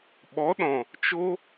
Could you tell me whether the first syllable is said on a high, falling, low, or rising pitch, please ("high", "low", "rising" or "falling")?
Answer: rising